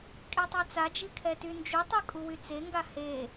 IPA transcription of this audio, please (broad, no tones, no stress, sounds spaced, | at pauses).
kʼ e tˤ ɛ t͡s a d͡ʒ i kʰ ɛ t y n d͡ʒ u tˤ y kʼ u w y t͡s e ŋ ɡ a h e